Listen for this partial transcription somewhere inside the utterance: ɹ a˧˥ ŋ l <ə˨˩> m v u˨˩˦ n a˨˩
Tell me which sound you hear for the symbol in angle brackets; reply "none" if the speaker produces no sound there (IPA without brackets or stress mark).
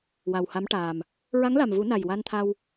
a˨˩